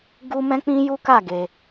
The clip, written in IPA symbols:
ɡu˦ mɛ̃˦k͡pĩ˦ju˦ka˦˨ ɡe˧

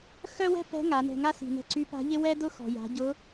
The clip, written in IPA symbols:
xœ˥wɛ̤˥ pɛ̤˧˥ ŋa˩˧nɛ̤˧ŋa˥ si̤˩nɛ̤˧ ǀy˧˥pa̤˧˥ʎɪ˥ wɛ˥dʊ˥ xɔ̤˩ja̤˩˧ ɟʊ˧˥

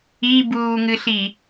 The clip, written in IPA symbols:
ibuːŋɨɬi

